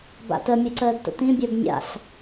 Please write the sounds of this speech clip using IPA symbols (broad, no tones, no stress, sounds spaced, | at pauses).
b a̰ t ə mʲ ə ǀ əː d t ə̰ t ĩ bʲ əː b mʲ a̰ ɬ